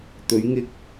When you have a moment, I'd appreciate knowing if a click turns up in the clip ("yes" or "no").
no